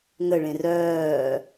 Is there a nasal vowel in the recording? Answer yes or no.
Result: yes